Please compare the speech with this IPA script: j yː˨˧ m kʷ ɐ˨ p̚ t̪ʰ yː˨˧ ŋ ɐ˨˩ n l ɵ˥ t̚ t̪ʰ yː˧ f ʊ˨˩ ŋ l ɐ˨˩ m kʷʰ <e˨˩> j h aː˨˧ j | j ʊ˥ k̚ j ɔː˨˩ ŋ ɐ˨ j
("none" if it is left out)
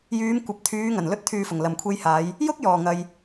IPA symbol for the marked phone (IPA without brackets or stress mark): e˧